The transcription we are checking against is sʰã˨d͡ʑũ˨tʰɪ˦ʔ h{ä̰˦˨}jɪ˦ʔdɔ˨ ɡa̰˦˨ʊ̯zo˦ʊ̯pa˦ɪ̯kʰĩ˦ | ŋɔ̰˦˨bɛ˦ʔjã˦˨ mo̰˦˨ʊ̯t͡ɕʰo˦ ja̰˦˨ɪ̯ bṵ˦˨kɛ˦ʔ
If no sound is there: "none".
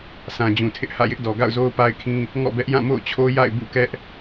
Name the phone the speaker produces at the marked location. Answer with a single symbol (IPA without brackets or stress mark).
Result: ä̰˦˨